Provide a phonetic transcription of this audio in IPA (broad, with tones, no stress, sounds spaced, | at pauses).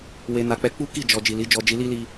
w e˧ n a˧ k͡p ɛ˧ k͡p u˦ k i˦˨ d͡ʒ ɔ˧ d͡ʒ i˨ l i˨˦ d͡ʒ ɔ˧ d͡ʒ i˧ l i˦ l i˧